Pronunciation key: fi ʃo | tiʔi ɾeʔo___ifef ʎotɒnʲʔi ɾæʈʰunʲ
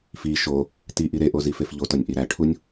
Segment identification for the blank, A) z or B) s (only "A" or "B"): A